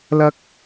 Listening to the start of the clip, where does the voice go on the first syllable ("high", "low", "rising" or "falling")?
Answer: high